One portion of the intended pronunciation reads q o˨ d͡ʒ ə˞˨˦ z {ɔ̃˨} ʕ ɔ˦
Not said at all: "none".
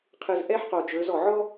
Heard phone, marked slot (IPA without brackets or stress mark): ɔ˨